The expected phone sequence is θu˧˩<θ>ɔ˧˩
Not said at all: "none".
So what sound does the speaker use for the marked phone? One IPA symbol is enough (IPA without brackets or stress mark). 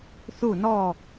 n